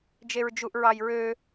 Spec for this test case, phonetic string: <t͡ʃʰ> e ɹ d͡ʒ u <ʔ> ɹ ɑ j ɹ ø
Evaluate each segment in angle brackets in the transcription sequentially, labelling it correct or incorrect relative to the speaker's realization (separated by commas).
incorrect, correct